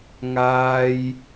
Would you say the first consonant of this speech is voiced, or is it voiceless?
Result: voiced